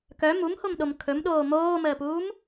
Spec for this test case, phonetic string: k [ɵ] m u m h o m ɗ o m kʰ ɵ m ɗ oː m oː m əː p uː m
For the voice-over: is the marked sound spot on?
no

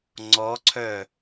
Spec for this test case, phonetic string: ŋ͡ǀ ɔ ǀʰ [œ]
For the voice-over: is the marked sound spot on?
yes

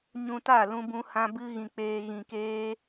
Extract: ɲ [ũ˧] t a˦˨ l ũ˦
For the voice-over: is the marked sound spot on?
yes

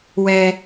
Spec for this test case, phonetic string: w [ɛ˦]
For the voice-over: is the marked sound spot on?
yes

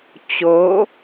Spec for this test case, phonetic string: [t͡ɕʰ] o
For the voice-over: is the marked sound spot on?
no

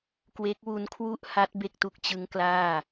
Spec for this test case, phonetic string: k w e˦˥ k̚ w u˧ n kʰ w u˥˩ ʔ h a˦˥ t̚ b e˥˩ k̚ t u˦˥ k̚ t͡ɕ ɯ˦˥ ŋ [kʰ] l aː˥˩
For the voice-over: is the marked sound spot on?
no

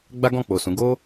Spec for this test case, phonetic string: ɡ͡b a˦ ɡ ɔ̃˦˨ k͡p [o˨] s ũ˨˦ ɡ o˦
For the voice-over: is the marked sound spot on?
yes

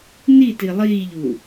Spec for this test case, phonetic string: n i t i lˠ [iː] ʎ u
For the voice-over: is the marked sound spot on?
yes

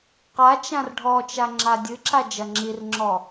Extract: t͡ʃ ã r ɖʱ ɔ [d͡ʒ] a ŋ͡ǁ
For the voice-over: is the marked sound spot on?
no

